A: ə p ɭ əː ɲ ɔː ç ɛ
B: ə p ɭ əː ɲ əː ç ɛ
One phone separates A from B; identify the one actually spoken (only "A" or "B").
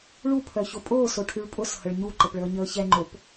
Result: B